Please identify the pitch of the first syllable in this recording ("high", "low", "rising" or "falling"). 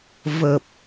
low